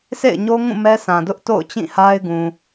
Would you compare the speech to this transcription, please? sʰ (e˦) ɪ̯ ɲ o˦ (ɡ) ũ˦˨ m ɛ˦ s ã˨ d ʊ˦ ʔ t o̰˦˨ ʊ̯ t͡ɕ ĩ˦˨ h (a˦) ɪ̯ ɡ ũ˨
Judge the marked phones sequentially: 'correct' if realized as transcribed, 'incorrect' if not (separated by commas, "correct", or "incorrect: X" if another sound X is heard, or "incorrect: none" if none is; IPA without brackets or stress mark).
incorrect: ḛ˦˨, incorrect: ŋ, correct